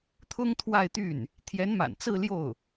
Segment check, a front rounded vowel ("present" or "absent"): present